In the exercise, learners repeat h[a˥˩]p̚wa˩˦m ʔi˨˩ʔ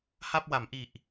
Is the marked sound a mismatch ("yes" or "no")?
no